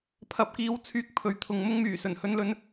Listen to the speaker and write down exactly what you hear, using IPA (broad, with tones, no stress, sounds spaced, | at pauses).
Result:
pʰ ɐ˧ p̚ k iː˧ w t͡sʰ yː˧ k̚ pʰ ɵ˨ ɥ t̪ʰ ʊ˨˧ ŋ m ʊ˥ ŋ m yː˨˩ s ɵ˨˩ n h ɵ˧ n l ɵ˧ n